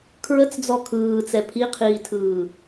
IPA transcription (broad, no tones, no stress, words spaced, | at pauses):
kʰɹət͡sd͡zɔ kʰɯːt͡sɛ pʰiqʰiːtʰɯː